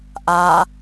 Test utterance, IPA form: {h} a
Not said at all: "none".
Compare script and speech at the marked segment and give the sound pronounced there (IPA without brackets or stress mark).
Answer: ʔ